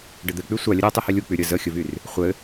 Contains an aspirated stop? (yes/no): no